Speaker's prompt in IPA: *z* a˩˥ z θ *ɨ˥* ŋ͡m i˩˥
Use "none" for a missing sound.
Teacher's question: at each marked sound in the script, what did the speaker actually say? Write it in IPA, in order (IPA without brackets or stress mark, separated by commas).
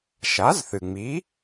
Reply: ʃ, ɨ˩